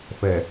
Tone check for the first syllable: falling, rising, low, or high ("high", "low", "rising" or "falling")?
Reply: low